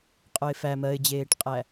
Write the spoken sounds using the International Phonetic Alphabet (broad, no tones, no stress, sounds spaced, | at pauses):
qʼ œ ɪ̯ f æ m ɜ ɪ̯ d͡ʑ eː ʈ qʼ æ